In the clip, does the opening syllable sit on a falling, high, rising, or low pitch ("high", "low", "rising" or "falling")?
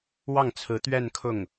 falling